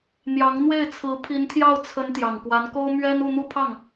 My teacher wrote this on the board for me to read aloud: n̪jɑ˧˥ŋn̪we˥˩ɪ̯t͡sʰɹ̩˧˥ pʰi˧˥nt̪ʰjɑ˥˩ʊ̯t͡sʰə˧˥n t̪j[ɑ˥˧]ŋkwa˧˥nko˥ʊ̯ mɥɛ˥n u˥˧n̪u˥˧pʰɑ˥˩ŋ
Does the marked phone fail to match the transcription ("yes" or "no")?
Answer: yes